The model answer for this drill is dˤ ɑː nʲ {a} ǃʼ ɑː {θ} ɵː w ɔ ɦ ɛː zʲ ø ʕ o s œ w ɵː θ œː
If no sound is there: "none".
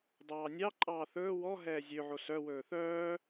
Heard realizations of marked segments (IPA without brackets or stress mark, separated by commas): ɑ, θ